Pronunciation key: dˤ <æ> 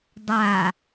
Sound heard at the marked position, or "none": a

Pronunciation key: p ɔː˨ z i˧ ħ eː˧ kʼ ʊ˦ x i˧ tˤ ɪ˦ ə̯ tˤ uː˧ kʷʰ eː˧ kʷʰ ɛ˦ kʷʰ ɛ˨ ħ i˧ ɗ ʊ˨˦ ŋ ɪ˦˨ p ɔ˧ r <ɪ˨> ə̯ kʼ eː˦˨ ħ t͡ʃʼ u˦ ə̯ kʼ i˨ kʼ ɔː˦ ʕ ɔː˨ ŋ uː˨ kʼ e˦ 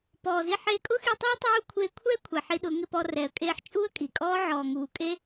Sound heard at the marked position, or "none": ɛ˨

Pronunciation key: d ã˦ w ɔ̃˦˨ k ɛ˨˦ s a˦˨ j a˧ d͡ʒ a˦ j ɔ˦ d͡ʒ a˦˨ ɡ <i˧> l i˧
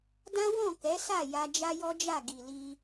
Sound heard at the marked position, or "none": i˨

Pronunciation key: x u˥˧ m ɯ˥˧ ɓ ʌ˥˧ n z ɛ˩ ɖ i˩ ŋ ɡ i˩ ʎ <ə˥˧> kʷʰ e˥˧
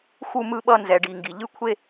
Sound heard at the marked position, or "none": ɯ˥˧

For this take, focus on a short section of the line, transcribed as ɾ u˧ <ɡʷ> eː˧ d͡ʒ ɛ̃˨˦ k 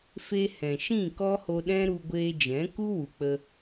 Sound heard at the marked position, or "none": ɡʷ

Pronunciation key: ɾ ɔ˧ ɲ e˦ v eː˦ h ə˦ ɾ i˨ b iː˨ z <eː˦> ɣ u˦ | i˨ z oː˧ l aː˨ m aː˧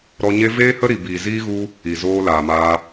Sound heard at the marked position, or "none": iː˦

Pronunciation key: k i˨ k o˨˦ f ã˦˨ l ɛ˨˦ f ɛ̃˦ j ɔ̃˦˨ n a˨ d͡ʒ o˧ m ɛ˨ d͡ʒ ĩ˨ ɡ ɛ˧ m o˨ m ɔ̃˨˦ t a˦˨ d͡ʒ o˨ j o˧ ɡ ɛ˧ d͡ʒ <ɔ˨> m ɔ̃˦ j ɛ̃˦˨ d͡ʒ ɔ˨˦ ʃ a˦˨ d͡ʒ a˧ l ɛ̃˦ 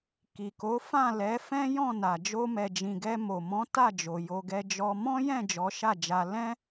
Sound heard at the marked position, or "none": ɔ˧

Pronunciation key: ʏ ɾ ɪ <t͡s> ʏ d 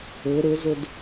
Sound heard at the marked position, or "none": z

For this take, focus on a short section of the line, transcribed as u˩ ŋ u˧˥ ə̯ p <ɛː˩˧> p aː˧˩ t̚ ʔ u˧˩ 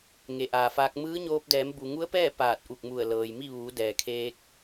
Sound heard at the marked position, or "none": ɛː˥˨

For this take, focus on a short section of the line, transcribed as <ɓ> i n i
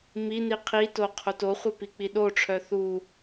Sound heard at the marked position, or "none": m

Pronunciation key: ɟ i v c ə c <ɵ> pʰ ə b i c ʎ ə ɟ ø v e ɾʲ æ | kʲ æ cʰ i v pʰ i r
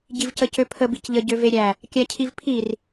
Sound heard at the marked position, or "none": ø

